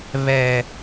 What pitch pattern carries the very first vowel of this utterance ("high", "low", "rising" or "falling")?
low